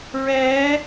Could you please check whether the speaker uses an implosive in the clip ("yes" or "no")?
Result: no